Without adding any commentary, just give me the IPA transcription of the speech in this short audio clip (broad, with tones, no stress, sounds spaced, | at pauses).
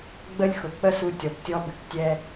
ɡ͡b ə˥ lʲ x ʊ˩ k͡p ə˥ s u˧ tʲ ɔ˩ p tʲ ɔ˧ b ɘ˩ k tʲ ɛ˧